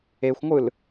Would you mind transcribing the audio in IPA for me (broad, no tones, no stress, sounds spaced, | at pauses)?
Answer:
e xʷ ŋʷ ɯ l